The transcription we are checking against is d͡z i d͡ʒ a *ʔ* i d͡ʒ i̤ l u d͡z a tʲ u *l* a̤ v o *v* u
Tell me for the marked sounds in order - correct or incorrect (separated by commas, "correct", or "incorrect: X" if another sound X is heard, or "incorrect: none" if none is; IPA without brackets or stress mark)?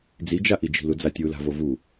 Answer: correct, correct, correct